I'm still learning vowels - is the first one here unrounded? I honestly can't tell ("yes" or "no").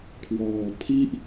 no